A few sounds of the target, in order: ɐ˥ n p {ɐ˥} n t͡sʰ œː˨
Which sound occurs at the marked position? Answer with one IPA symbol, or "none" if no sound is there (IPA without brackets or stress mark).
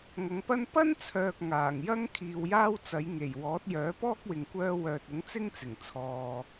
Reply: ɐ˥